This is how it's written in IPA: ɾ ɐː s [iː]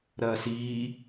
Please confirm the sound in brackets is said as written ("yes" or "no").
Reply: yes